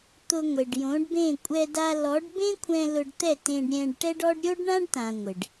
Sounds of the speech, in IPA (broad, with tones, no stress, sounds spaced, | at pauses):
t̪ ʊ˧ ŋʷ e˨ ɖ j õ˨˦ ɖ b ẽ˦˨ kʷʼ ɛ˧ d a˧ l ɔ˨˦ ɖ b ẽ˦ kʷʰ ɛ̃˧ l ʊ˧ ɖ t̪ ɛ˦˨ t ẽ˧ ɖ ɾʲ ɛ̃˧ ɖ ʈ ɛ˦ ɖ ɔ˦ ɖ ɾʲ o˦ ɖ ɳ ã˦ ɖ t ã˨ ŋʷ ɪ˨ ɖ